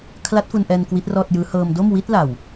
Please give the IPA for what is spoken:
kʰla˦˥t̚fu˧nʔɛː˧n kwi˦˥t̚rɔː˥˩t̚jɯː˦˥ hɤː˧mdo˥˩m wi˦˥t̚la˨˩w

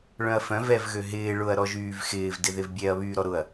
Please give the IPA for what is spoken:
ɭœ̃ɐ̯fœ̃ vɛvɣøɦɪː ɭʊɐ̯ ɾɔʒyːvxɪːv dɪðɪvbʲɛɐ̯ βyːɾɔɾʊɐ̯

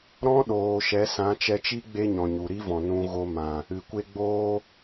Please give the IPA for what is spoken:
ɾɔ̃˦ɗoː˨ʃɛ˨˦ sã˨˦t͡ʃɛ˧t͡ʃi˦ ɡ͡be˦ɲɔ̃˨ɲu˨ ɾi˦vɔ̃˨ nũ˧ɣo˧mã˨ | ɨ˨kʷe˦ɡ͡boː˦

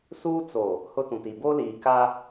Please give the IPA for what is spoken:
suː˦t͡so˨ | hʊ˦tũ˨ti˨ bo˦liː˨ka˦

